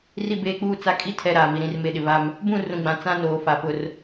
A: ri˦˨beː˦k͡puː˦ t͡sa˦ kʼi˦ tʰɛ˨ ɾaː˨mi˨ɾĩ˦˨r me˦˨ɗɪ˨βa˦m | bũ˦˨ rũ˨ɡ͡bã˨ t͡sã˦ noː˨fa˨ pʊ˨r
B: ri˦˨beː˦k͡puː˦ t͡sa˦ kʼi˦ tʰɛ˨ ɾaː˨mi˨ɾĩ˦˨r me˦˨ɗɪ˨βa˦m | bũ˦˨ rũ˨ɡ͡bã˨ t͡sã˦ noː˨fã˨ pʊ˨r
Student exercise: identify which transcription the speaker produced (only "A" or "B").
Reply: A